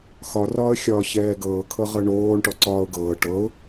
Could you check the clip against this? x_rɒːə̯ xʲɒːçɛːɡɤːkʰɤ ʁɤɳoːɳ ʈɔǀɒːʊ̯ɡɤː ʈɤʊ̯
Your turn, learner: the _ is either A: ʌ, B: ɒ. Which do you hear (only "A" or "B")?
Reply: B